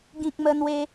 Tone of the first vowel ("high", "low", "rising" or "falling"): high